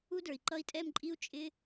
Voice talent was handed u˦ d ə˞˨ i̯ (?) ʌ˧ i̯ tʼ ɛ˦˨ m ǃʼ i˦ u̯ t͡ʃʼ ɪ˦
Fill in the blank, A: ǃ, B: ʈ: A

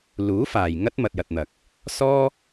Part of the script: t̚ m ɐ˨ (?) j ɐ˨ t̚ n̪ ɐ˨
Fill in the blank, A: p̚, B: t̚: B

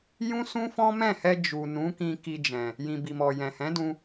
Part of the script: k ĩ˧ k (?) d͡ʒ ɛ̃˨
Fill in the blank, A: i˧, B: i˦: A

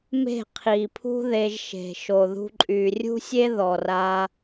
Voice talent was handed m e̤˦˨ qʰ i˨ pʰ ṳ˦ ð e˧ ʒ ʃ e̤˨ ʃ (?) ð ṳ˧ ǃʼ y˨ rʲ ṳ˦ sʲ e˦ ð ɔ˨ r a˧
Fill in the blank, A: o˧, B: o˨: B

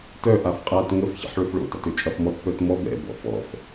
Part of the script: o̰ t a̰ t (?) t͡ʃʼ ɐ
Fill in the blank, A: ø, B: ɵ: A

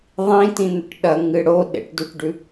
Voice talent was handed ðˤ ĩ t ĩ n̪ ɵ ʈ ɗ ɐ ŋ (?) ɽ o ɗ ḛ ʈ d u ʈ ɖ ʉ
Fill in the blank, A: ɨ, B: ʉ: A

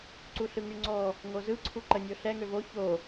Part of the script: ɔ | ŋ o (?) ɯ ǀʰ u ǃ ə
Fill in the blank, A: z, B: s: A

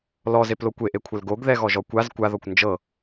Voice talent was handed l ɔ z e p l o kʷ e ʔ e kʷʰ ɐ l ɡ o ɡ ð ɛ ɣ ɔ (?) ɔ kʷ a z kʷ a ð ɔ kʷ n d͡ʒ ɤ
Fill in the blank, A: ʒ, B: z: A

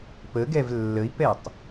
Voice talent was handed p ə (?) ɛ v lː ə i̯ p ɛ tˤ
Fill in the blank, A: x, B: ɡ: B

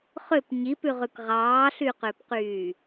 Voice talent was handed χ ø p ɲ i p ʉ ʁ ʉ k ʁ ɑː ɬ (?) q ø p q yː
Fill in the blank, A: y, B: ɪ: A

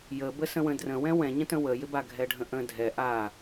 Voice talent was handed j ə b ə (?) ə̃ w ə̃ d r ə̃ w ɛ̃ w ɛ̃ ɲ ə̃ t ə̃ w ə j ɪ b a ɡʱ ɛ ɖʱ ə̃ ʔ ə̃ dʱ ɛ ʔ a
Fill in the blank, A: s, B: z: A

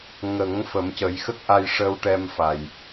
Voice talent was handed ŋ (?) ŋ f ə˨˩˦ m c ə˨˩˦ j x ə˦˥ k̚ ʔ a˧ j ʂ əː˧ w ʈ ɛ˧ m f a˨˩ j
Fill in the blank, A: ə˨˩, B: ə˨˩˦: B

